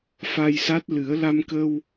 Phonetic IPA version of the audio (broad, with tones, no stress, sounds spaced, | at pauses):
f a˧ j s a˦˥ t̚ l ɨ˨˩˦ ə̯ l a˧ m k ə˧ w